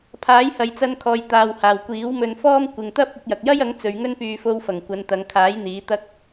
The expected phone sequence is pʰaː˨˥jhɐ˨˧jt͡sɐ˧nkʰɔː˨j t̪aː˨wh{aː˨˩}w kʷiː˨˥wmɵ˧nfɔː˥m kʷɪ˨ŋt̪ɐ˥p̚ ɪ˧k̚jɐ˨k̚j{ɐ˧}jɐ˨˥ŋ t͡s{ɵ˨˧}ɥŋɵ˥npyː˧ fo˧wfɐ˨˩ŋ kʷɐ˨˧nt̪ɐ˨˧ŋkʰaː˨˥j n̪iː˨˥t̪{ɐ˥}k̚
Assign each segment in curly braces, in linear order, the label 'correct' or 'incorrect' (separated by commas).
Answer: correct, incorrect, correct, correct